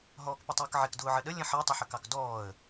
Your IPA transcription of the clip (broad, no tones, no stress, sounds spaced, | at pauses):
ɦ ɔː k p ə tˤ ʊː k ʕ ɪ k d ʊː ʕ ə ɗ ə lʲ ə̃ ħ ɜ tˤ ə ħ ə k ɑ k d ɔː ə̯